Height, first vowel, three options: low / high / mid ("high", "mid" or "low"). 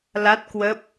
low